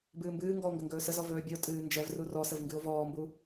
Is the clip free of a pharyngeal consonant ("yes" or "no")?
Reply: yes